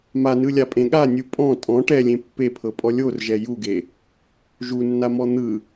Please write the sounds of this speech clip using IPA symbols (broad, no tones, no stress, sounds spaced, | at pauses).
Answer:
m a n ɯ lʲ a pʼ ẽ ɠ a nʲ u pʼ ɔ̃ tʼ ɔ̃ ʈ ɛ lʲ ẽ pː e pʰ ɤ pʼ ɔ lʲ o r ʒ ɛ j u ɡ e | ʒ u nː a m ɔ n̪ ɯ